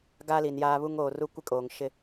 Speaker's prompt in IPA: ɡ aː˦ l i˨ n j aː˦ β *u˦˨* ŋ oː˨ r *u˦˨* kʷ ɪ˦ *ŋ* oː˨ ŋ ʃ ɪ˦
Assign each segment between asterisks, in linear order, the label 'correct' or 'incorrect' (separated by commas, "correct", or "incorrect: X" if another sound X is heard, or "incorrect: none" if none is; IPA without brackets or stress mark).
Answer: incorrect: u˦, incorrect: u˦, incorrect: kʼ